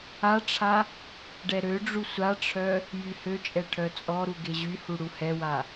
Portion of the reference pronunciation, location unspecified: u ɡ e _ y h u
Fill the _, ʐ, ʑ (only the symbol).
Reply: ʑ